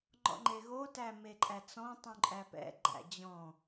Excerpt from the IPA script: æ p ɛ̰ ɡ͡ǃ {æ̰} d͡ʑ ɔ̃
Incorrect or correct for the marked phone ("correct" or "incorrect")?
correct